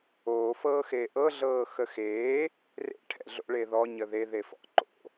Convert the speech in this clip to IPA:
oː f ɤː x eː ʔ ɤ ɮ ɤː x ə x eː | r ḛ ʈʰ ɛ̰ ɮ o̰ ɭ e ð ɔ ɲ ə ð e ð e f ɔ̰ ǃ o̰

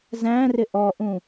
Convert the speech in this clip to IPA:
z æ̃ r ɪ ʔ ɔ ʔ ũ

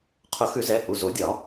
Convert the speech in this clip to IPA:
qʰ ʊ˨˩˦ x ʉ˨˩˦ z ɛ˩˧˩ h u˩˧˩ z o˨˩˦ dʲ ɒ˨˩˦

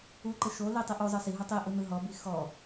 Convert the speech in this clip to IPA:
u ǃ ɯ ʃ o l i tˤ i ʔ u zˤ ɤ s i ɦ u tˤ i ʔ ɯ n ɯ ɦ ɔ b i x ɔ

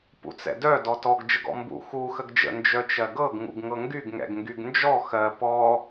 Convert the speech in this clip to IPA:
p ṵ t͡s ɛ̰ d œ d ɔ t ɔ ɡ d͡ʒ ə ɡ ɔ̰ m b ṵ x u x ə ɡ d͡ʒ ə̰ n d͡ʒ œ t͡ʃ ɜ ɡ ɤ ɡ ŋ ṵ ɡ ŋ ɤ ŋ ɡ y ɡ ŋ ɛ̰ ɡ ŋ ɡ y ɡ n d͡ʒ ɔ x ɜ p ɔ

